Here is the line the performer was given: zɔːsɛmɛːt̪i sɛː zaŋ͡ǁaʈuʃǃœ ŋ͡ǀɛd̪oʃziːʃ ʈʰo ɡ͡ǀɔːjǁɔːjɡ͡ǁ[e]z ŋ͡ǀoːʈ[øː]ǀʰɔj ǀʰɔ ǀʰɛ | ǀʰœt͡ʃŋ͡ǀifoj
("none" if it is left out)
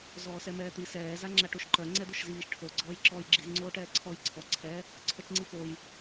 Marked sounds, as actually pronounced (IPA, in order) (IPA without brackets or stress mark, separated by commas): i, ɛː